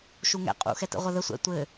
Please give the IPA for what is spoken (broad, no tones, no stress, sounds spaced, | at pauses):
ʃ u ŋ ɛ̰ qʼ ṵ x ɛ t ə̰ ʁʷ ɐ ð ə sʷ ɛ̰ tʷ ɘ